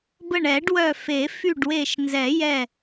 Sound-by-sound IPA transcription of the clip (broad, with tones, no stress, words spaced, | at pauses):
bə˧˩ɳɛ˨˩˦ɖwœ˧˩fe˨˩˦ fy˧˩ɖwe˧˩ʃnzɛ˨˩˦jɛ˧˩